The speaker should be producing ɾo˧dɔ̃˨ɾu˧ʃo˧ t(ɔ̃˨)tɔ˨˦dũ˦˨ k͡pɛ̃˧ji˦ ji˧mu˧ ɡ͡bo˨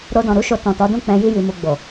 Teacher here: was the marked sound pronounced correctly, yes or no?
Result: yes